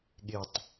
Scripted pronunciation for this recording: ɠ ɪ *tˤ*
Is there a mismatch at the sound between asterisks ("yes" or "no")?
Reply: no